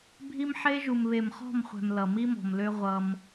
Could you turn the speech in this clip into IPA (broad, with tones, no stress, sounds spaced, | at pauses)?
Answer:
bʱ i˦ m ħ e˦ ʒ u˨ m β e˨ m χ ɔ̤˦˨ m χʷ ɛ̤˨ m l ʌ˨ m i˦ m ɔ̤˨ m l ø˦ ʁʷ ʌ˦ m